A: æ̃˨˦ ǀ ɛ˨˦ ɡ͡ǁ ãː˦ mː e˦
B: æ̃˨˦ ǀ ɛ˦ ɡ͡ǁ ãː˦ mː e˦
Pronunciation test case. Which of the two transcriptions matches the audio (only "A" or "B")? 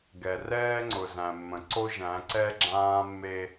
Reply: B